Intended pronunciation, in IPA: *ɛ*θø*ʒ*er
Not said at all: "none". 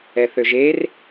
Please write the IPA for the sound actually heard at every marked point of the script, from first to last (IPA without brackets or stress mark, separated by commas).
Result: ɛ, ʒ